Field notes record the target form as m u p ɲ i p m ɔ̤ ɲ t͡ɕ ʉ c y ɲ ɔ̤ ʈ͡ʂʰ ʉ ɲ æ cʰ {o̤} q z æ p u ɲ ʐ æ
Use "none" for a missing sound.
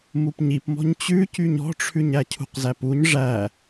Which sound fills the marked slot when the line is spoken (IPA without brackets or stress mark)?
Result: ṳ